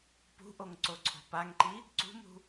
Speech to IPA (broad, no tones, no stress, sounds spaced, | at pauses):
p ṳ ʔ o ŋ ǀ o ǀʰ o̤ p a ŋ ǃ i | ǀ ṳ m ṳ